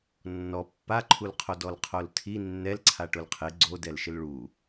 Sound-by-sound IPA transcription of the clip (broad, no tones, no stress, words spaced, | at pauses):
nːɔ pːaǃʰulqʰo dɔlqʰoltʰi nːɛlǀʰa ʈʊlqʰɪ ɡ͡ǀodɛlʃɪl ɭu